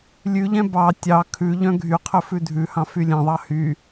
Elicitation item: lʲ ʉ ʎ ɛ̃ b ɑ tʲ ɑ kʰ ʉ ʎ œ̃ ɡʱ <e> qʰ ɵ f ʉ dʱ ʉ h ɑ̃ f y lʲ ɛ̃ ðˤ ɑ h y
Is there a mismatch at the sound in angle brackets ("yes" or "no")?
yes